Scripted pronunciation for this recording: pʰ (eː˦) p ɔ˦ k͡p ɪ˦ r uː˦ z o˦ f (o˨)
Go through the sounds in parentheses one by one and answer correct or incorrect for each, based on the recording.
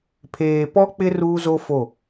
incorrect: eː˨, incorrect: o˦˨

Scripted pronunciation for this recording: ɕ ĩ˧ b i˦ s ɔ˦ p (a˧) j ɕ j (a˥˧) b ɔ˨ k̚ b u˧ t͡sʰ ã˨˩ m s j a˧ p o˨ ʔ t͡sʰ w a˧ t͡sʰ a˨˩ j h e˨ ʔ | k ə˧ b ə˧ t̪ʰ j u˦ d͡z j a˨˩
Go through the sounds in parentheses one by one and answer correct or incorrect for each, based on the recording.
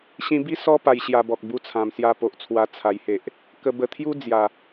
correct, incorrect: a˧

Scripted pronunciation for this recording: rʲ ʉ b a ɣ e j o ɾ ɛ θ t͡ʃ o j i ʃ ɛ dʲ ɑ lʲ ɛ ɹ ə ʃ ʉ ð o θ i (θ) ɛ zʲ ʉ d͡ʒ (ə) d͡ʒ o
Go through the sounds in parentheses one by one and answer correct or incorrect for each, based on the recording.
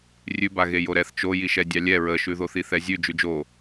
correct, incorrect: ʉ

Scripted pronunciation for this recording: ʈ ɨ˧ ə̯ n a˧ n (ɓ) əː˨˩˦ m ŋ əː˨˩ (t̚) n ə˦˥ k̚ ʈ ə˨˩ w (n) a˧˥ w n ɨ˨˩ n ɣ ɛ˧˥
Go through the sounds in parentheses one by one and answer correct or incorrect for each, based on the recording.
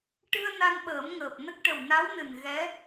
correct, incorrect: p̚, correct

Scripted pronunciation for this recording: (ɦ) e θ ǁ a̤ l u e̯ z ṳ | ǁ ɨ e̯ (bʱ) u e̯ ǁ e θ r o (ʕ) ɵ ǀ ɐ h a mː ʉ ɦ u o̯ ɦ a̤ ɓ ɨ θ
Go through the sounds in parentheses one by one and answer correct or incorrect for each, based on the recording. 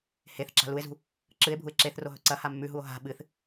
incorrect: h, correct, incorrect: ɦ

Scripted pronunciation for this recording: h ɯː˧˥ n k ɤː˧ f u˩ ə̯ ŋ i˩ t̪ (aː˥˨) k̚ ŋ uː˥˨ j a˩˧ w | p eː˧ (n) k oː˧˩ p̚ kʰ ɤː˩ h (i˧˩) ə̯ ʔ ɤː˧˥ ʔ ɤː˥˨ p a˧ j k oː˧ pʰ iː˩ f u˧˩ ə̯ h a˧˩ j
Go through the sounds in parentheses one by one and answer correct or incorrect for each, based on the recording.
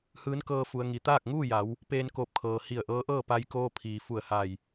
correct, correct, correct

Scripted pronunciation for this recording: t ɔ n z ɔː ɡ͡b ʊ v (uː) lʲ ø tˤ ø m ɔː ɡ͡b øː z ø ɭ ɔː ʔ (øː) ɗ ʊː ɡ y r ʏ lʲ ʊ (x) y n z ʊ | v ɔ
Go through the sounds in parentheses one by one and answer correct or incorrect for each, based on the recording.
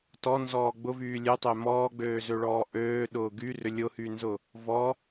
incorrect: yː, correct, incorrect: h

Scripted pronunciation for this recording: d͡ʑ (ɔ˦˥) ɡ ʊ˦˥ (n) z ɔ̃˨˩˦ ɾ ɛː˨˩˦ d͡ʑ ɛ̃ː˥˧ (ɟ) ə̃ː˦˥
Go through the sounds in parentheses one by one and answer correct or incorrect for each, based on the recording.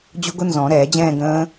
incorrect: ʊ˦˥, correct, incorrect: ɡ

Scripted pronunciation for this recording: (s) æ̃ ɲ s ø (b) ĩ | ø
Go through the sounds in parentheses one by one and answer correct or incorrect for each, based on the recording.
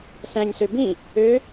correct, correct

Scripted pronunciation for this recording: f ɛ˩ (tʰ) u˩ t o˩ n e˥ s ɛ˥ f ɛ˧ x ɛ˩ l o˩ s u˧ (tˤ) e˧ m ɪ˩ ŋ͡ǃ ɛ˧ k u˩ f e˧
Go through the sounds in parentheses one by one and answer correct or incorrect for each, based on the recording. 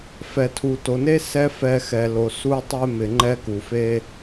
correct, correct

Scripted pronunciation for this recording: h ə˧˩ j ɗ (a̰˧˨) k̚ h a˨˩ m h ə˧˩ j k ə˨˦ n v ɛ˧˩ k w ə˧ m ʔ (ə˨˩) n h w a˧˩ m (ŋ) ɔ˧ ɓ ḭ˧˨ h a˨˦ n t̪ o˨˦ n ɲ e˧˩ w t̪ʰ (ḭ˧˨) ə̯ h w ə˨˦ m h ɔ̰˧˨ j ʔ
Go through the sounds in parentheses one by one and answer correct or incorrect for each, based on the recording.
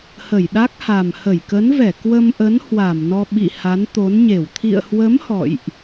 incorrect: a˦˥, incorrect: ə˨˦, incorrect: n, correct

